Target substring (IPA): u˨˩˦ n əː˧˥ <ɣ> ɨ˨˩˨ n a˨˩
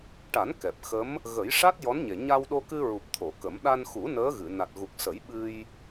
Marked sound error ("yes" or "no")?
no